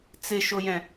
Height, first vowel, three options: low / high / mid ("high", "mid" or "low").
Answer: high